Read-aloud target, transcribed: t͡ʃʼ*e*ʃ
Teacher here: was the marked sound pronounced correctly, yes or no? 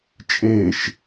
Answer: yes